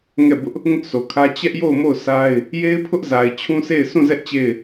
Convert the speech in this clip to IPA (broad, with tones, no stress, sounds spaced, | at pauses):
ŋ ɛ˦˨ b ʊ˦ ʔ | ŋ ʊ˦ ʔ s o˨ kʰ ä˦ t͡ɕ ɛ˦ ʔ j o˦˨ ʊ̯ m o˦˨ ʊ̯ sʰ a˦ ɪ̯ | j e˦ ɪ̯ pʰ ʊ˦ ʔ z a˨ ɪ̯ t͡ɕʰ ũ˦ s e˦˨ ɪ̯ s ũ˦˨ z ɛ˦ ʔ t͡ɕ e˦˨ ɪ̯